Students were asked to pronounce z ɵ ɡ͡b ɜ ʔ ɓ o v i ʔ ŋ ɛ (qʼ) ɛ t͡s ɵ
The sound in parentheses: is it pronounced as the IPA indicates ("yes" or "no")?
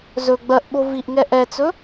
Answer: no